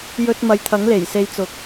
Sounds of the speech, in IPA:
j ɵ˥ t̚ m ɐ˨ j t̪ʰ ɐ˨˥ ŋ l e˨˩ j s e˧ j t͡s ʊ˨˥ k̚

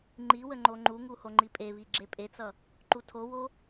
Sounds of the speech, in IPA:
ŋ͡ǃ i w ə ŋ͡ǃ o ŋ͡ǃ u ŋ u h o ŋ͡ǃ i pʼ e β i ɡ͡ǁ e pʼ e t͡s ʌ | ǃ u tʰ o w o

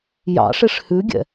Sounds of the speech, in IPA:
j ɑ̰ ʂ e ʂ h ʉ ɡʲ ɛ̰

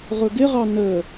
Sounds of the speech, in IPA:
ʁ ʊ ɡ ɪ ʁ ɑ n ə

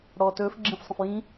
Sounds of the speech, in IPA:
ɽ ɔː t ɵː f ɡ͡ǁ ĩ f sˤ ə̃ f j ĩ

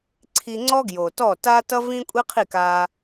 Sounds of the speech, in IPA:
ǀʰ i˧ ŋ͡ǀ ɔ˥ ɡ j o˩ t ɔ˥˩ t a˥ t ʌ˥ v ĩ˥ kʷʼ i˥ qʰ i˥˩ k a˧

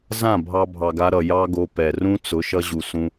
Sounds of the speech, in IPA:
z ã˦˨ bʱ ɑ˧ bʱ ɑ˨ ɡ a˧ ɾ ʌ˨ j ɑ˦ ɡ o˧ p ɛ˨ r ũ˦ t͡s ʊ˨˦ ʃ ʌ˧ ʑ u˨ s ũ˧

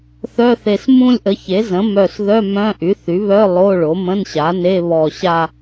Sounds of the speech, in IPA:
θ œ˧˥˧ θ e˧˩ s m ũ˥˧ lʲ ʔ ə˩˥ ç e˩˥ z ə̃˩˥ m œ˧˩ s ð œ˧˥˧ m œ̃˧˥˧ ʔ y˩˥ θ y˩˥ β œ˧˥˧ lˠ o˧˥˧ ɭ o˩˥ m ə̃˧˥˧ n ɕ a˩˥ n e˧˥˧ β ɔ˧˩ ɕ a˥˧

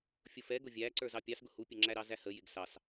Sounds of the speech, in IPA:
fʲ ʊ f ɛ ɡ ʊ vʲ æ ǀ ə˞ z ɑ pʲ ɑ s ɡ ʊ h u pʲ ə ŋ͡ǁ æ ɾ ɑ z æ h ə j ɪ ɡ s ɑ s

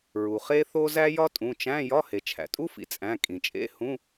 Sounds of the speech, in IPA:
ɹ u˩ χ e˥ θ o˥ z æ˥ j ɒ˥ tʼ ũ˩˧˩ t͡ʃ æ̃˧˥˧ j ɒ˧˥˧ h e˩ t͡ʃʰ æ̰˩ tʼ u˥ f ḭ˩ t͡sʼ æ̃˩˧˩ kʼ ĩ˩ t͡ʃʼ ḛ˧˥˧ h ũ˧˥˧

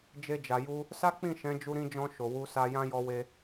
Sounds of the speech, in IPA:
d͡ʒ e˧ d͡ʒ a˨ j u˧ | s a˦ k͡p ĩ˦˨ ʃ ɛ̃˨˦ d͡ʒ u˧ ɾ ĩ˧ d͡ʒ ɔ̃˧ ʃ o˨ w u˧ s a˧ j ã˦ j ɔ˧ w e˧

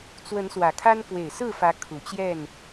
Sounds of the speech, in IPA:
t͡s w ə˨˦ n s w ä˨˩ kʰ a˦ n k w e˨˩ ɪ̯ s ɹ̩˥˨ f ä˨˦ kʰ u˨˩ t͡ɕ j ɛ˥˨ n

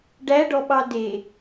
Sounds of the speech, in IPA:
ɖ æ ɖ ɔ ɓ ɑ d e

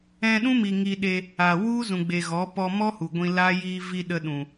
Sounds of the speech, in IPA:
ɛ̃˧ ɗ ũ˦ m i˨ ŋ iː˧ ɗ e˧ | a˨ w u˦ z ũ˨ ɡ͡b e˨ ɣ ɔ˨˦ p ɔ˧ m ɔ˦ h u˨ ɡʷ ĩ˧ l a˦ j iː˧ v i˧ ɗ ə˧ ɗ ũ˨

